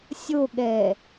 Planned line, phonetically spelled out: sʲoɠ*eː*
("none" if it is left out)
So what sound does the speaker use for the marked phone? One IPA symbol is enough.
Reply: ɛː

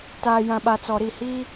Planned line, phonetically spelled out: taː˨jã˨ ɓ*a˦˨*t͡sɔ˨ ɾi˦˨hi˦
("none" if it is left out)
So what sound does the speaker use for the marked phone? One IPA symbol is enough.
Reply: a˨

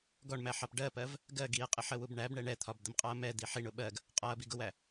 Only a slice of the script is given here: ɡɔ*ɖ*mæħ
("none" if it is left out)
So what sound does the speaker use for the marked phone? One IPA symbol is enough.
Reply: ɳ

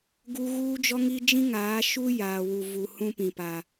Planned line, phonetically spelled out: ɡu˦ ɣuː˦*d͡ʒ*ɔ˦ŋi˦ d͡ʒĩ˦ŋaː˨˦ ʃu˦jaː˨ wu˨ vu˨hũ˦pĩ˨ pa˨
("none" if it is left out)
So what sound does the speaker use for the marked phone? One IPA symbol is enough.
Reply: d͡ʒ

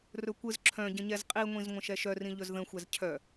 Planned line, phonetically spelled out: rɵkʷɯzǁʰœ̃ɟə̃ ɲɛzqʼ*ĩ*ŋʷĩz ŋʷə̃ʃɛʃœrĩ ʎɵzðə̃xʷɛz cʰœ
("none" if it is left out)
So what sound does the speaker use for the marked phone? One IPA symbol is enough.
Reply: i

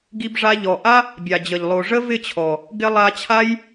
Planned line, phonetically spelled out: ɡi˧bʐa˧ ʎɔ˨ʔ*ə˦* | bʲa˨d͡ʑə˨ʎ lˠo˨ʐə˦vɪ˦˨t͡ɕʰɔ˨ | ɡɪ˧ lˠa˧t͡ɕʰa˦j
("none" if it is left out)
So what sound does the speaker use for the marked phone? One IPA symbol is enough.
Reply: a˦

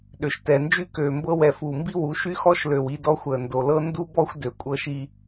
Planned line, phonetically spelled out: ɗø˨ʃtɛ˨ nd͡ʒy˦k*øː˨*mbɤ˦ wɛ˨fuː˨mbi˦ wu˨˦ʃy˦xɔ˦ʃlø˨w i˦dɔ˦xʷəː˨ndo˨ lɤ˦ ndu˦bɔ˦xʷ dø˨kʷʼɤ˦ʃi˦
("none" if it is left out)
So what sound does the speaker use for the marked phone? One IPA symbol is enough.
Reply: øː˨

